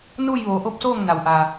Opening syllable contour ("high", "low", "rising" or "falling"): falling